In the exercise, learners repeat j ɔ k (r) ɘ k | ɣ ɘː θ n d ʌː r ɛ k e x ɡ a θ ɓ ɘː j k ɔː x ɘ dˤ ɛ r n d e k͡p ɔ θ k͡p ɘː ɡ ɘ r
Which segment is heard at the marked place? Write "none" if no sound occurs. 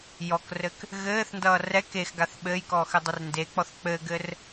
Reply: r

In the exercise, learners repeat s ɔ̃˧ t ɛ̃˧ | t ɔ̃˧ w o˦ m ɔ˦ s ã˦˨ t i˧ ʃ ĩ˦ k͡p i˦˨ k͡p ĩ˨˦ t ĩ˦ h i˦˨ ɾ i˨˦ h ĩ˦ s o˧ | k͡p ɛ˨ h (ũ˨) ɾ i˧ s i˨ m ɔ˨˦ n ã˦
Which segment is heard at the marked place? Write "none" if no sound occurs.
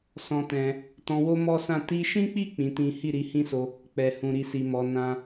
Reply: ũ˨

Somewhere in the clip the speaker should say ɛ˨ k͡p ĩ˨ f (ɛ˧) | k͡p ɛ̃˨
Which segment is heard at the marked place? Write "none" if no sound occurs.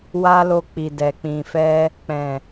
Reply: ɛ˧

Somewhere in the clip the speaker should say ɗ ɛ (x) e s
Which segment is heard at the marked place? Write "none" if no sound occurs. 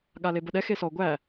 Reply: x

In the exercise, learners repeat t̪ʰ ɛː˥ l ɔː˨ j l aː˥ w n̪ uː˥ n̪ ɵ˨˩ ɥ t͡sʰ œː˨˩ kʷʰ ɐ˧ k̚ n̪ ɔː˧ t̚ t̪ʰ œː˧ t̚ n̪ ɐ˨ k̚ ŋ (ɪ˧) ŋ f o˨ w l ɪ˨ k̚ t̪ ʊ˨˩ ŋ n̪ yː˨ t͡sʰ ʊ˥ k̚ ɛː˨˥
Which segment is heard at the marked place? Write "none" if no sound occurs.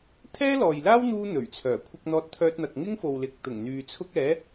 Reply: ɪ˥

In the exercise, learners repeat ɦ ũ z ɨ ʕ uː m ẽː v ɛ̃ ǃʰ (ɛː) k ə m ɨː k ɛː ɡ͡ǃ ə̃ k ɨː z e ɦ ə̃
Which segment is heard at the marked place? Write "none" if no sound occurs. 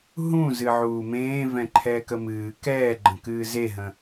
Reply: ɛː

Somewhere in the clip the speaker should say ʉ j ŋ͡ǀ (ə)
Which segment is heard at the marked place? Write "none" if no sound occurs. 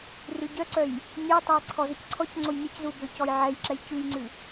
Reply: ʉ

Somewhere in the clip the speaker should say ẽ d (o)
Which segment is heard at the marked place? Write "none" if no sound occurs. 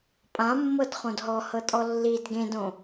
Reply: õ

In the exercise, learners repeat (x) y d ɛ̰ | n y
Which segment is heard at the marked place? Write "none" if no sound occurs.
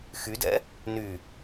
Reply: x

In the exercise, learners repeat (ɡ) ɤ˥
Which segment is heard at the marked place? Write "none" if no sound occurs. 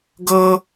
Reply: ɡ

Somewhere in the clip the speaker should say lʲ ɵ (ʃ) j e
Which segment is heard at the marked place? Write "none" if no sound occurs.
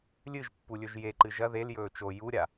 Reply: ʒ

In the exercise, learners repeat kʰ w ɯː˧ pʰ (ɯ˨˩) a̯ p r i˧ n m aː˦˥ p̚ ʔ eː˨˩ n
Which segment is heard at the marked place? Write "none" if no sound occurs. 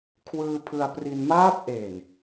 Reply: ɯ˧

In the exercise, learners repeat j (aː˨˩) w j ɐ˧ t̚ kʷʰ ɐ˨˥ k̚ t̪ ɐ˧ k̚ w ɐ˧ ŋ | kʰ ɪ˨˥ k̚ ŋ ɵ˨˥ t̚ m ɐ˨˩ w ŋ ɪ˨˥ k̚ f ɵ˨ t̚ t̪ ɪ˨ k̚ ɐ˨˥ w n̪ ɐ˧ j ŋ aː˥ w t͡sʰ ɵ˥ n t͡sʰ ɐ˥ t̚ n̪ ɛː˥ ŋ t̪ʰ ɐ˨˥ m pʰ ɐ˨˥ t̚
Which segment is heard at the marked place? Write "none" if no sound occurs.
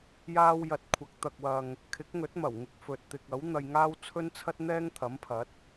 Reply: aː˥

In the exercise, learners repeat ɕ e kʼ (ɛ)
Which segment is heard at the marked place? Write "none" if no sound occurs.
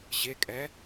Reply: ɛ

